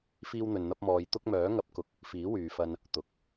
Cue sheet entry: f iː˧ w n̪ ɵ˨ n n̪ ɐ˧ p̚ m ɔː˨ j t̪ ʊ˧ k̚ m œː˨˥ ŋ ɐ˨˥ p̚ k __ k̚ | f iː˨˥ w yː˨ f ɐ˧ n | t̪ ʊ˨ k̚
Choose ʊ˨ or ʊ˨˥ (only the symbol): ʊ˨˥